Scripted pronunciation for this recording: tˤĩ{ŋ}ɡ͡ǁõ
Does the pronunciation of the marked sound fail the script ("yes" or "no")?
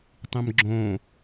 yes